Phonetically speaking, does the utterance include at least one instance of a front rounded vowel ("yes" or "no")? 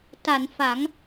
no